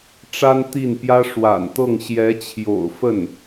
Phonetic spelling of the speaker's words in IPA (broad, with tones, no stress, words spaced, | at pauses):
ʈ͡ʂa˥nt̪i˥˩npjä˥ ʂwa̰˨˩nt̪ɤ˥˩ŋ ɕjɛ˧˥t͡ɕʰjo̰˨˩ʊ̯fə˥˩n